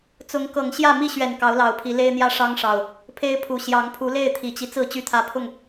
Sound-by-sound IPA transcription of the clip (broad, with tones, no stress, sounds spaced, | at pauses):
t͡s ʊ˨˦ ŋ k ɤ˨˩ ŋ ɕ j ä˥˨ m i˥˨ ɕ ɥ ɛ˨˩ n k ɑ˨˦ ʊ̯ l ɑ˨˩ ʊ̯ pʰ i˨˦ l e˦ ɪ̯ n̪ j ä˦ ʂ ɑ˦ ŋ ʂ ɑ˨˩ ʊ̯ | pʰ e˦ ɪ̯ pʰ u˨˩ ɕ j ɑ˨˦ ŋ pʰ u˨˦ l e˥˨ ɪ̯ t̪ʰ i˨˩ t͡ɕ i˦ t͡s ɹ̩˥˨ t͡ɕ y˦ t̪ʰ ä˦ pʰ ʊ˥˨ ŋ